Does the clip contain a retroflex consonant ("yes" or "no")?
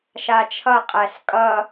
no